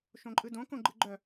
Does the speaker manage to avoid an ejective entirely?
no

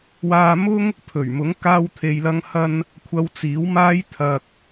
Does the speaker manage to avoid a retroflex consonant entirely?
yes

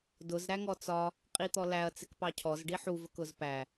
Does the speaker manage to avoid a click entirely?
yes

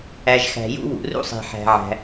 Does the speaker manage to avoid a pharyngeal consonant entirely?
no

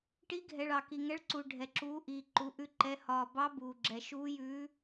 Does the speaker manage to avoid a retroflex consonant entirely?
no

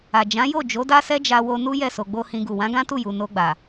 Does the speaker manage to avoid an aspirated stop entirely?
yes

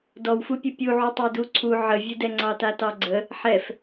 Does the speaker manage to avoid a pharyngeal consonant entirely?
no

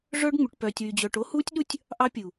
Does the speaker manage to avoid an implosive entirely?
no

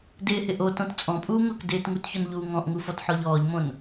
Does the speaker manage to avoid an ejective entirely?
no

